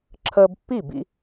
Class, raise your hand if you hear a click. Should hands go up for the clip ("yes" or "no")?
yes